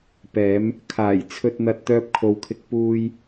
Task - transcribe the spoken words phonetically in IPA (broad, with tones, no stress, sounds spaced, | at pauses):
p ɛː˨˧ m | kʰ aː˨˩ j t͡sʰ ɵ˨ t̚ n̪ ɐ˨ t̚ t̪ œː˧ p̚ kʰ o˨ w kʰ ɪ˧ k̚ p uː˧ j